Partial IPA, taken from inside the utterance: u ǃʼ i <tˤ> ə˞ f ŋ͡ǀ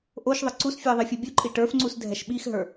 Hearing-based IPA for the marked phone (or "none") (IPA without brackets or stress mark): ʈ